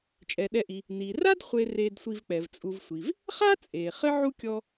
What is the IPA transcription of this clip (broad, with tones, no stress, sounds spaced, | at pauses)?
t͡ʃʼ ɛ˩ ɗ ɛ˨ ʔ i˩ | n i˩ r a˥ d χʷ e˨ r eː˨ d sʷ i˨ v k͡p ɛ˩ v t͡sʼ u˨ v sʷ i˩ v | χ a˥ t͡sʼ eː˩ χ ɘ˦ ʕ u˥ kʲ ɔ˦